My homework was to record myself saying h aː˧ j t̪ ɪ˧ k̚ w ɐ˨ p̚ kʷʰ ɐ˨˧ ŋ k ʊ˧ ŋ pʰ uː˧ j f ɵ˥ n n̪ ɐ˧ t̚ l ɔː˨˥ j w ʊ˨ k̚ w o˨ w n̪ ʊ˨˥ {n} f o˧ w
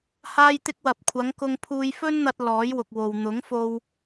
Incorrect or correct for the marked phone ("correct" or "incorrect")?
incorrect